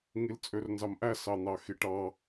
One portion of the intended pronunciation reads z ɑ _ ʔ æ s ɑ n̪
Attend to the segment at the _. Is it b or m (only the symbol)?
m